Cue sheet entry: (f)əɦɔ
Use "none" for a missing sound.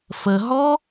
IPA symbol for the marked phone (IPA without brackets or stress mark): f